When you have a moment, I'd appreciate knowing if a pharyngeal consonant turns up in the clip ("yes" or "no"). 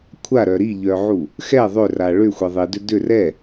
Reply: yes